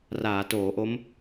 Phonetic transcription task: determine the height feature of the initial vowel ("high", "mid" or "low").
low